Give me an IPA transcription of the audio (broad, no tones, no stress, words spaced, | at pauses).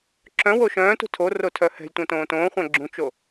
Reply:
ǁœ̃ woʃœ̃ːtṳ tʰo rotʰœhɛ̤lʲtʷœ̃ tõːtõːχʷæ̃ ɡ͡ǁũt͡ʃo